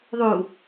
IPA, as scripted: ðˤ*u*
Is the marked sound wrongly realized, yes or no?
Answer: no